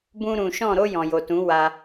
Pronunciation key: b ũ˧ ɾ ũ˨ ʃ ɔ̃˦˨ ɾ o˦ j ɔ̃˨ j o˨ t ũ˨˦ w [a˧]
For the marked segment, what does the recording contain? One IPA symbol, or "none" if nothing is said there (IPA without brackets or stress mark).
a˧